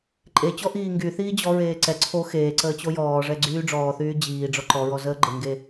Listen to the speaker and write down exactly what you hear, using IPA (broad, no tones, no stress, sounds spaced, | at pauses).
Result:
ǃʼ e t͡ɕ ɔ ʔ iː ŋ ɡ y θ iː d͡ʑ ɔ ɹ eː ǀ ɛ ǀʰ o x eː ǀ əː t͡ɕ o j ɔː ʐ ɛ ɡ͡ǀ yː ɖ͡ʐ ɔː θ yː d͡ʑ iː ɖ͡ʐ ɔ ǃ ɔ ɹ ɔ z əː ɡ͡ǃ ə ŋ ɡ e